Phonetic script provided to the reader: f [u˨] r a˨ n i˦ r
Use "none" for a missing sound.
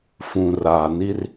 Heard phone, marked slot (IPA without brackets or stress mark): ũ˨